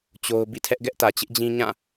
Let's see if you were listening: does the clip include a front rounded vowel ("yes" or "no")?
no